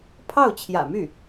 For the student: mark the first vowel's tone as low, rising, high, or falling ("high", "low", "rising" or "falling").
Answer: falling